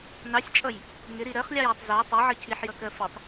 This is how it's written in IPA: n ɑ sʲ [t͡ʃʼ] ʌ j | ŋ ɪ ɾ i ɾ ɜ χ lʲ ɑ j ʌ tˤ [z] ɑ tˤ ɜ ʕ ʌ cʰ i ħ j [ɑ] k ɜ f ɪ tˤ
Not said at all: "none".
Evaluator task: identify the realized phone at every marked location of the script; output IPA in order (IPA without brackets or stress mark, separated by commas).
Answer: t͡ʃʼ, z, ʌ